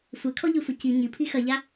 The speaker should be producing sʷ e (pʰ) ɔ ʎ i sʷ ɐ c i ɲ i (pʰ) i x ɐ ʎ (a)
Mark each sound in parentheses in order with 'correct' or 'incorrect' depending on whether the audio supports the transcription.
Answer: incorrect: kʰ, correct, correct

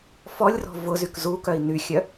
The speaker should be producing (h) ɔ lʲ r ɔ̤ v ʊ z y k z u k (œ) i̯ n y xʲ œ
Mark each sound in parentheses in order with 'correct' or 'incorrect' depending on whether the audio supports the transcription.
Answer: incorrect: f, correct

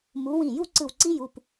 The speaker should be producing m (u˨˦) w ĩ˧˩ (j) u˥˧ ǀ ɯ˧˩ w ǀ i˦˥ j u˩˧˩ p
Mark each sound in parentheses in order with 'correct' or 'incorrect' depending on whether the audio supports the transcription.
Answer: correct, correct

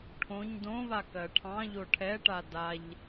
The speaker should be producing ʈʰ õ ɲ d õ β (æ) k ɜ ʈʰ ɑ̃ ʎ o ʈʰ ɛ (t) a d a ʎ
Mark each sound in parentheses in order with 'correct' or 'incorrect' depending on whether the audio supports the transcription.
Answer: incorrect: a, incorrect: ʈ

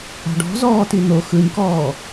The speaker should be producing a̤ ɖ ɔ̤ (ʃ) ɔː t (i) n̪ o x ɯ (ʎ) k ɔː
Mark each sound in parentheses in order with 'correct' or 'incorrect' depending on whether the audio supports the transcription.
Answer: incorrect: z, correct, incorrect: ɲ

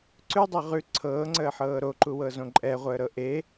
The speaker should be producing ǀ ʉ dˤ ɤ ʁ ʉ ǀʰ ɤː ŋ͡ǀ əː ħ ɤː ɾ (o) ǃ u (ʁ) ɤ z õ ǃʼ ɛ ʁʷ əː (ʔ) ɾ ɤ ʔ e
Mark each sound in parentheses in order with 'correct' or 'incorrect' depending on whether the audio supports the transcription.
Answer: correct, incorrect: w, incorrect: none

